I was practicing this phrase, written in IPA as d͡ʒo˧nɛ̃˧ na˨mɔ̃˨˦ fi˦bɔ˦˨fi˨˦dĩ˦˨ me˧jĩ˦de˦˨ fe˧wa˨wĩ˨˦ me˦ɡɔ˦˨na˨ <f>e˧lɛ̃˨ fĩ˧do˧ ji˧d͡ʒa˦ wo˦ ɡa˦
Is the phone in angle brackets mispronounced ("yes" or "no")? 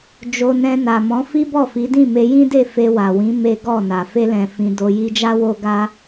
no